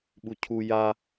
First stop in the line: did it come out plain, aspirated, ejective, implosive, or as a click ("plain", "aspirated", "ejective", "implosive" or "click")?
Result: implosive